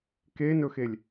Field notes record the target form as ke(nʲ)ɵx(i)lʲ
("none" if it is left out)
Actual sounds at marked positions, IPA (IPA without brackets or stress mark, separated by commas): n, e